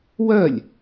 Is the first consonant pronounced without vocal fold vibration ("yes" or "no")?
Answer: no